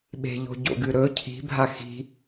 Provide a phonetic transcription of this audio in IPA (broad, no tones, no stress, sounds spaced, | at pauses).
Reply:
ɓ e̤ ʎ o̤ ɟ o̰ ɡ ɨ ɾ ɵ cʰ i̤ bʱ a x i̤